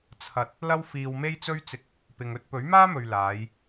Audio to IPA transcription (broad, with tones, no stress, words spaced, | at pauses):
t͡sʰɐ˧t̚ | lɐ˥wfiː˧wme˥jt͡sɵ˥ɥ t͡sɪ˧k̚ | pɪ˧ŋɵ˥t̚ pɵ˨˥ɥmaː˥mɵ˨ɥ laː˨˧j